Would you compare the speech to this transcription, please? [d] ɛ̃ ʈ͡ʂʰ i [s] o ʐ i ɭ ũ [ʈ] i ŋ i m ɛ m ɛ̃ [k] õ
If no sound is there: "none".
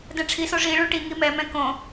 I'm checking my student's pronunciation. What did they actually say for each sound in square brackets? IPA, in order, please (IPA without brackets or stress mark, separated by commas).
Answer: d, s, ʈ, k